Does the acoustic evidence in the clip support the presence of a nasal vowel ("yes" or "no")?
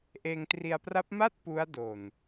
no